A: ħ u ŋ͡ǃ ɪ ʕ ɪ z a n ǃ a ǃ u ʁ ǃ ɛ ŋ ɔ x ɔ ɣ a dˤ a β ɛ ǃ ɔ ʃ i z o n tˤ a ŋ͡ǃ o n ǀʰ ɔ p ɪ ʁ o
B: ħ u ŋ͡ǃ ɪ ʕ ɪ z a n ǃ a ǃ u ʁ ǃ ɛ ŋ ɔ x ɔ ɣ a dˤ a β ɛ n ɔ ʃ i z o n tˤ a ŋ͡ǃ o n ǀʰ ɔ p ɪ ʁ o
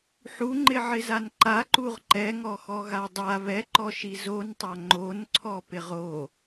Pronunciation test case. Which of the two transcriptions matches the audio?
A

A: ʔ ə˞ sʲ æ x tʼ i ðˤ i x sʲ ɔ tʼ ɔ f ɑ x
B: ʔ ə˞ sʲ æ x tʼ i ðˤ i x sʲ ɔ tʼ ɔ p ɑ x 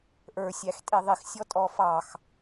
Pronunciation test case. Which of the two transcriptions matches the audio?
A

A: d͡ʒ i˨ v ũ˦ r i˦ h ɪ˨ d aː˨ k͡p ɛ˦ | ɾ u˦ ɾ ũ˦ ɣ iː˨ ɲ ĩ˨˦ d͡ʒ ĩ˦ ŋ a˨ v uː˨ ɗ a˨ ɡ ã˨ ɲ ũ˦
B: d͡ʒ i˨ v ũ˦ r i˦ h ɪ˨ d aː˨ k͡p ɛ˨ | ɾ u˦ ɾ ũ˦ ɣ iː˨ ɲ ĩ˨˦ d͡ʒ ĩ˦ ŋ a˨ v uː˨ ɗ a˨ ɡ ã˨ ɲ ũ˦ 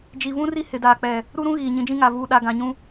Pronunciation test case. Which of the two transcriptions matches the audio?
B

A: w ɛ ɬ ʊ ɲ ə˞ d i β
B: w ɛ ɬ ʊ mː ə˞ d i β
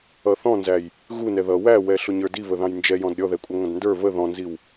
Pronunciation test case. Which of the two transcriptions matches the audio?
A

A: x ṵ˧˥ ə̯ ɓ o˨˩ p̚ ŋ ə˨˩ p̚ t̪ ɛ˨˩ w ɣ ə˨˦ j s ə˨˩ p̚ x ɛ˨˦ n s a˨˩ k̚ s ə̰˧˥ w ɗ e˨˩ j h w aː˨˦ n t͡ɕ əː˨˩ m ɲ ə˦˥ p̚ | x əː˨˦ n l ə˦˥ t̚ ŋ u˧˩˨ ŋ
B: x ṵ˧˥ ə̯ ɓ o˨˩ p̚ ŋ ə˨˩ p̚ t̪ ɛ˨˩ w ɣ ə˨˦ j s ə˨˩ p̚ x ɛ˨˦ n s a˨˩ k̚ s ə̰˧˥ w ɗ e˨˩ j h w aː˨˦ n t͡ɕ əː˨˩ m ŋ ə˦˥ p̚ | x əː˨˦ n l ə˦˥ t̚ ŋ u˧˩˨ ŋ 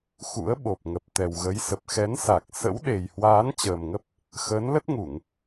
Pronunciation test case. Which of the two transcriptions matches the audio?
B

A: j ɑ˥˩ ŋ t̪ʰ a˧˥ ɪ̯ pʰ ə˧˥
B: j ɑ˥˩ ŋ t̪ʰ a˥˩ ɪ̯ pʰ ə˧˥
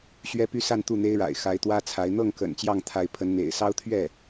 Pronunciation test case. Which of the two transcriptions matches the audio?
A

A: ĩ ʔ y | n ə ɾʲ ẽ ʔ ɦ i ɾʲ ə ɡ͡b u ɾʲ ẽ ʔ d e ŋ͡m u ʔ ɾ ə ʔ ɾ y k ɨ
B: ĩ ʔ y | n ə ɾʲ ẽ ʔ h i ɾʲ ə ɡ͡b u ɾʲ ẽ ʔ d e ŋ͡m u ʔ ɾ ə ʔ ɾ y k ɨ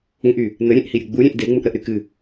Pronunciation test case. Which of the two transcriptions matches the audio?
B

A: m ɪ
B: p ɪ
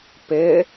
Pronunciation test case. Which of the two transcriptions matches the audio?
B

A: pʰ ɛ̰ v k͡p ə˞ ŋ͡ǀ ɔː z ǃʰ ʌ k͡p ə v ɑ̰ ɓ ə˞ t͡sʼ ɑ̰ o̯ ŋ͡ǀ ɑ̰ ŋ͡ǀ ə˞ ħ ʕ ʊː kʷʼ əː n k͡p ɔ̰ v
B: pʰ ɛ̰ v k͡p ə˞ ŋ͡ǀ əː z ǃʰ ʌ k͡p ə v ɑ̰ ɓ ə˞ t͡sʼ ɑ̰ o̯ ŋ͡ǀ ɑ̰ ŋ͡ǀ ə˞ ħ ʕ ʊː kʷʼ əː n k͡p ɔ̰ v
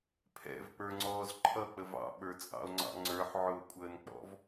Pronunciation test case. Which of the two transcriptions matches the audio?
A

